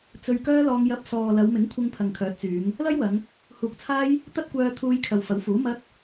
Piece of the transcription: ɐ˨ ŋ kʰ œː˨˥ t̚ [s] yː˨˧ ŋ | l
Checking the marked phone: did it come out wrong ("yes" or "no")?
yes